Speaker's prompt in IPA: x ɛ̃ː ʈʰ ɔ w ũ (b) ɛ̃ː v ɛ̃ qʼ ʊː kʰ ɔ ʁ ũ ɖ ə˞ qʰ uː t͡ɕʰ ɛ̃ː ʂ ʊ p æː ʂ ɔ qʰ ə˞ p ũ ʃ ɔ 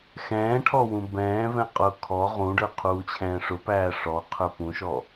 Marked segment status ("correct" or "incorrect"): correct